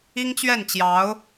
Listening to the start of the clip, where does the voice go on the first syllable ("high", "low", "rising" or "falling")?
high